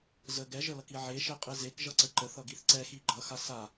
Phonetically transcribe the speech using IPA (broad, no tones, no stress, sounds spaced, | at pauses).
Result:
z ə ɡ ɛ ʒ ə l ʌ k i ʕ e ʃ e qʼ i z e k ʒ ʌ ǀ ə ǃ ə θ ʌ ɡ i θ ǀ ɛ x i ɡ͡ǃ ʌ x a s a